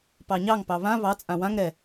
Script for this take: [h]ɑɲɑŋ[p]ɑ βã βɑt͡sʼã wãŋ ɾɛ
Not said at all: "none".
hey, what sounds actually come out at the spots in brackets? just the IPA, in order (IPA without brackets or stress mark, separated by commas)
p, p